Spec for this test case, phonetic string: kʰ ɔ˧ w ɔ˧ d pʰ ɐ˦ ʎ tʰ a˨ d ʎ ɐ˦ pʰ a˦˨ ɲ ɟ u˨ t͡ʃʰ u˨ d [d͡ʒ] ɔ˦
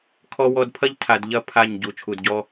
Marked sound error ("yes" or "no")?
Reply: yes